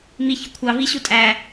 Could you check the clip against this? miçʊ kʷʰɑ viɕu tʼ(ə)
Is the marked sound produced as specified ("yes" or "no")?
no